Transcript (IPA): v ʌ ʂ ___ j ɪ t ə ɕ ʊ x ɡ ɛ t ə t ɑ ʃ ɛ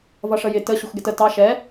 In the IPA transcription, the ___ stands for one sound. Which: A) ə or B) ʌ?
A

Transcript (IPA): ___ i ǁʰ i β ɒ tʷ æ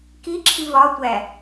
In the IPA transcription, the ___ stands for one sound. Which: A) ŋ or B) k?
B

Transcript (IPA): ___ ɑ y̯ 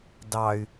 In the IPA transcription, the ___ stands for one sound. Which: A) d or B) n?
A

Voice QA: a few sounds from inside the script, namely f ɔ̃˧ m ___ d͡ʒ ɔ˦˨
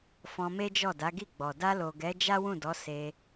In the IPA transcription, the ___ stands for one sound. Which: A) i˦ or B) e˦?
B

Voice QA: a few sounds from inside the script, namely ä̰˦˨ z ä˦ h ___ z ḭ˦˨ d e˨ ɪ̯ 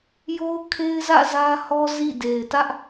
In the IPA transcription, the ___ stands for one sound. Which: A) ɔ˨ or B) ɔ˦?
B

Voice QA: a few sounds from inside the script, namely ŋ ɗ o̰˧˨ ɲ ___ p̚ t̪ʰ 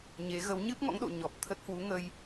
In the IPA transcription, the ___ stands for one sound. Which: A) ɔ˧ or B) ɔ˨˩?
B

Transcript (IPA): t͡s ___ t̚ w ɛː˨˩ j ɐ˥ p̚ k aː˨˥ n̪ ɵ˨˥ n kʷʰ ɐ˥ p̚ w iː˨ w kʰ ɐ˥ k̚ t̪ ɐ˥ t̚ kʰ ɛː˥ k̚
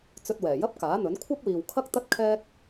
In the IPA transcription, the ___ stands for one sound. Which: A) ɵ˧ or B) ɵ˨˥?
A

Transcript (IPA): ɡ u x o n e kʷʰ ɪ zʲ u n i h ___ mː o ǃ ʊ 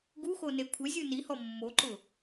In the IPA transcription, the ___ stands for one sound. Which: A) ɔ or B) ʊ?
A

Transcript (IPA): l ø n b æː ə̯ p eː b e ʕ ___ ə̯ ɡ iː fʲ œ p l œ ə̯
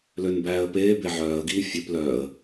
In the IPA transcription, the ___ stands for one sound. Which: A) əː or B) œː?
B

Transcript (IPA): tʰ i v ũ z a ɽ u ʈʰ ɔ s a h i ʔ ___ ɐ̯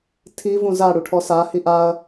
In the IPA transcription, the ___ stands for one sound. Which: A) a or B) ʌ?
A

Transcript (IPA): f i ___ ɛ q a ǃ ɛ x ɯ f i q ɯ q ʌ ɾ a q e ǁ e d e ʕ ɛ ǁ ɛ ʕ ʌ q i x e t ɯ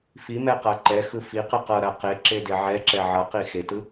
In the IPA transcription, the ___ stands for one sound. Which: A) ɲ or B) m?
B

